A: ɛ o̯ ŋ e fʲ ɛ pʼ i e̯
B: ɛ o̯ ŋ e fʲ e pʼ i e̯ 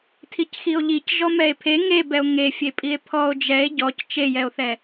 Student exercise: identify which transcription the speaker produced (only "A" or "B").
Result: B